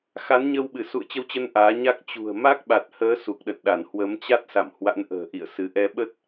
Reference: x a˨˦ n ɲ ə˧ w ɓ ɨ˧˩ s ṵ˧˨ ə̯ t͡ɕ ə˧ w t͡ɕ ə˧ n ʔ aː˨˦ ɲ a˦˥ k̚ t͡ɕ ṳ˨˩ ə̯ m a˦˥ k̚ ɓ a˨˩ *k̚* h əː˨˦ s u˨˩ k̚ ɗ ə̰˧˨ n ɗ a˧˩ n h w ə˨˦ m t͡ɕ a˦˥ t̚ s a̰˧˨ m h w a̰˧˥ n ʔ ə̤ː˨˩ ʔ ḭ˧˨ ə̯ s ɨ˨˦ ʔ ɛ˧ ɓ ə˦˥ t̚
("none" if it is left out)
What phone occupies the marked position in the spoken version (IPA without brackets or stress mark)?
t̚